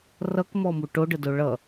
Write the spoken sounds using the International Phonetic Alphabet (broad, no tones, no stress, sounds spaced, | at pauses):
r ʌ k m ɔ m u ʈ o ɖ ə d o ɭ ʌ